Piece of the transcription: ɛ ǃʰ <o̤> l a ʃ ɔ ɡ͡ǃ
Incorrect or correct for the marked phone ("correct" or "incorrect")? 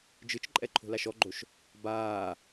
correct